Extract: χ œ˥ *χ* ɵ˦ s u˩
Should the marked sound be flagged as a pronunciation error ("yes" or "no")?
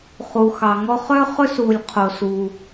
no